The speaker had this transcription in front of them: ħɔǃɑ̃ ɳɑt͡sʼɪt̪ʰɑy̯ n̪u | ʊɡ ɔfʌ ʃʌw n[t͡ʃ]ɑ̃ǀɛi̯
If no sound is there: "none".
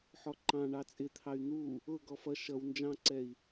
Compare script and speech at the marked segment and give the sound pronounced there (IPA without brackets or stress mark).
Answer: d͡ʒ